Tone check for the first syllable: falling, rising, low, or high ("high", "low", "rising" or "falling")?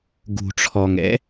low